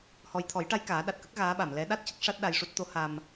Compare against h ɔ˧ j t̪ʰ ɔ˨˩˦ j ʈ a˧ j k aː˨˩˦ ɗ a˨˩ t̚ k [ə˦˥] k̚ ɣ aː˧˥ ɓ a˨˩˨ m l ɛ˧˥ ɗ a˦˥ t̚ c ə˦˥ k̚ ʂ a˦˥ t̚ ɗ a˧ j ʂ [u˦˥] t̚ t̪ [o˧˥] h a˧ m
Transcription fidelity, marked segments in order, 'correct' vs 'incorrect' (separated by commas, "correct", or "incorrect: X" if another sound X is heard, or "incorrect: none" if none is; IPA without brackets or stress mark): correct, correct, correct